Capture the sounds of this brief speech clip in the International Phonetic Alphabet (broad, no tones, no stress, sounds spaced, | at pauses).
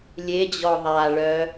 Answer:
lʲ e d͡ʑ ɔ ðˤ a ɭ œ